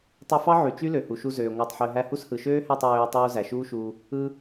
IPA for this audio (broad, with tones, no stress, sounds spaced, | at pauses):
tˤ ø˧ f ɑ˦ ʕ y˨ t͡ʃ y˦ l ø˨ h u˨ ʃ u˧ z øː˨ ŋʷ æ˧ tˤ ħ ø˧ ɦ æ˧ h u˦ s h ɯ˨ ʃ øː˦ h æ˦˨ tˤ ɹ øː˧ tˤ uː˧ z æ˨ ʃ uː˦ ʃ uː˧ | ɯ˧